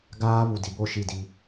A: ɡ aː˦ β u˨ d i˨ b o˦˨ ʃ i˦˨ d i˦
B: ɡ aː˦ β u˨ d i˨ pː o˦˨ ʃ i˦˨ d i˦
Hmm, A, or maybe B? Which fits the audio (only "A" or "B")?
A